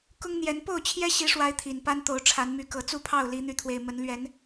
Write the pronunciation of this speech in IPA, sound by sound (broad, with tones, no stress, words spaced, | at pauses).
kʊ˦ŋn̪jɛ˨˦n po˥˨ʊ̯t͡ɕʰjɛ˦ɕi˨˦ʂwa˨˦ɪ̯ t̪ʰi˨˩npa˦nt̪o˨˦ʊ̯ ʈ͡ʂʰa˨˦nmy˨˦ kɤ˨˩t͡su˥˨pʰɑ˥˨ʊ̯ li˨˦n̪y˨˦t̪ʰwe˨˩ɪ̯mə˨˦n lɥɛ˨˦n